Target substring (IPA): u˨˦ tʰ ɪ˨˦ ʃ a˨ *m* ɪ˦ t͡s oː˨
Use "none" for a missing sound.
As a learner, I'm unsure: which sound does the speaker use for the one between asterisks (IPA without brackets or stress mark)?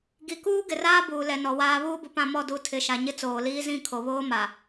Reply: ɲ